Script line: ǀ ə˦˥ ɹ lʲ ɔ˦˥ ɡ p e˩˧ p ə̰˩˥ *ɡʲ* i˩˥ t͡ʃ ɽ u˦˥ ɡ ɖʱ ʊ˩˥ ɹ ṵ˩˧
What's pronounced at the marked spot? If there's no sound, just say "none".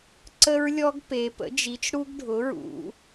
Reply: d͡ʒ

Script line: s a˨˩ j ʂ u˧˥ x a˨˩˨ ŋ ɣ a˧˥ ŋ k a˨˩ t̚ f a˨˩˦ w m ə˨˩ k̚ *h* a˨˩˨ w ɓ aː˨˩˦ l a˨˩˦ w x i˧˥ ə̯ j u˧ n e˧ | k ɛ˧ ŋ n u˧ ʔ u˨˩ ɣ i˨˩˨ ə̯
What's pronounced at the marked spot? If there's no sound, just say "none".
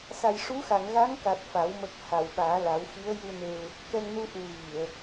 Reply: h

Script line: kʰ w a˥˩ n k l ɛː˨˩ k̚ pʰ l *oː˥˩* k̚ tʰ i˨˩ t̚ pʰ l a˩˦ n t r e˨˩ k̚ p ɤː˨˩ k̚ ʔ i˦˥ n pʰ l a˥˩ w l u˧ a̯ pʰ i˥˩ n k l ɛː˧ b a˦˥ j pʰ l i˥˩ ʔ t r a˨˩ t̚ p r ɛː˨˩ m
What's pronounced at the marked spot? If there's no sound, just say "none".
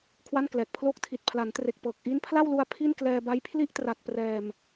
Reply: oː˥˩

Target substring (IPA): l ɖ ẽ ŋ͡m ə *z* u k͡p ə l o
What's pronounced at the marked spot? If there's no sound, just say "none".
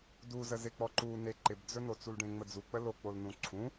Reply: d͡z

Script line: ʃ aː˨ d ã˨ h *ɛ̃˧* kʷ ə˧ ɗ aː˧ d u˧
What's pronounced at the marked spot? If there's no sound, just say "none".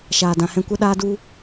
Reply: ɛ̃˧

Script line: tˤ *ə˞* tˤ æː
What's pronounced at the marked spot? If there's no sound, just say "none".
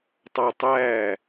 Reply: ʌ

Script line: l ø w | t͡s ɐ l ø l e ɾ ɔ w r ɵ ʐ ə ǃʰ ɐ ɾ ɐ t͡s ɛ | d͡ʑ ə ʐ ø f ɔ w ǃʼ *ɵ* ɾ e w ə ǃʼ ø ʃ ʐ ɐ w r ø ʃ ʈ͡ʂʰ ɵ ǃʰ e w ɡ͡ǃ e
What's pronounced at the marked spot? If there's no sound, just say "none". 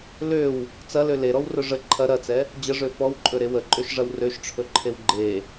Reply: ɵ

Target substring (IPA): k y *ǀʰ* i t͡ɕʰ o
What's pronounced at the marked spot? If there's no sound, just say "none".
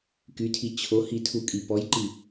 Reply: tʰ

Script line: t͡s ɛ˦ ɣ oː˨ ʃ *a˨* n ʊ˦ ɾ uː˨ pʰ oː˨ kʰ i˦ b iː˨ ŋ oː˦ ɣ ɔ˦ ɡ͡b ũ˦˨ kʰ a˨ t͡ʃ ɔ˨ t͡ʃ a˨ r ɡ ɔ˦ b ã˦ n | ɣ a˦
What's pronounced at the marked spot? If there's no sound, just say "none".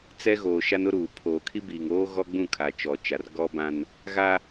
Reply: a˦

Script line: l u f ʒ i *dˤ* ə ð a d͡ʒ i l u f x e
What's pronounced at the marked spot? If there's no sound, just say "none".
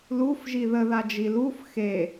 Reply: ð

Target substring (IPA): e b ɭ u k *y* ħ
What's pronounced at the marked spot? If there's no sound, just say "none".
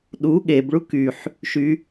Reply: y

